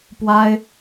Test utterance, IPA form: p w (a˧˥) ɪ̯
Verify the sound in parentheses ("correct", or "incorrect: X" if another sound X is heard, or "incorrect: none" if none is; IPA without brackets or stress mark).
incorrect: a˥